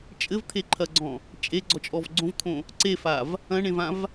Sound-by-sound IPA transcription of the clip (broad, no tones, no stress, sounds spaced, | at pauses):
t͡ʃʼ ɘ v t̪ʰ e ǃʰ ɐ ɡ͡ǀ ɔ̃ | t͡ʃʼ e ɡ͡ǀ ɔ t͡ʃʼ ɔ v ɡ͡ǀ õ v t̪ʰ õ | ǀ e f a v | ɐ̃ ɳ ẽ v ã v